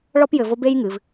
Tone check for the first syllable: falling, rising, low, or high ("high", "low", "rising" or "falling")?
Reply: high